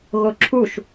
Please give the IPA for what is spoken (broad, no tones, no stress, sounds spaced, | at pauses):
ɣ o ǁʰ u ʃ